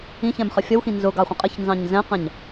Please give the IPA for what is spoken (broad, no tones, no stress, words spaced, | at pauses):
ĩçɛ̃mχə fʲʌwxĩ nzʊɡɑχʷə̃ qʼɪçnzɑ̃ɲ zɛ̃qɛ̃ɲ